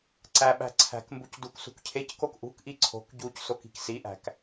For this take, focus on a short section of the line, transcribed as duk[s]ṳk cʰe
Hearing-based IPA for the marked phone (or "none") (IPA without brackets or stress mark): s